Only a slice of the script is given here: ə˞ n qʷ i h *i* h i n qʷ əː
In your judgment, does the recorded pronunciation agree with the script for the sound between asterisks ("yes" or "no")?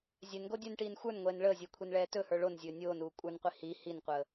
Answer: yes